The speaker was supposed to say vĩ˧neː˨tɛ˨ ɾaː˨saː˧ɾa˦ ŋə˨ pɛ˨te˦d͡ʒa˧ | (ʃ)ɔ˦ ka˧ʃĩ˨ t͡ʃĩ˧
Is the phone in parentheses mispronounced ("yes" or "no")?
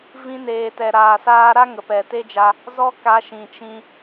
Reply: yes